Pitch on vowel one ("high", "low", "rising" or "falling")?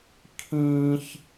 high